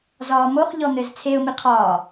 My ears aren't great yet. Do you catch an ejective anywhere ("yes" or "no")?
no